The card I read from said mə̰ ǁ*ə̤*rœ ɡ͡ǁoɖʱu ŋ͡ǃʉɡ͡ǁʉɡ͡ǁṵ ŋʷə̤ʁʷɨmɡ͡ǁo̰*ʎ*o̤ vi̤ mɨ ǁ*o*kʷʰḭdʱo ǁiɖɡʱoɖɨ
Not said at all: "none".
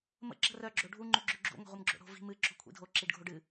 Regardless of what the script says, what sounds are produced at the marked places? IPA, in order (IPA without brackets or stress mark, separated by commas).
ə̤, ɽ, o̤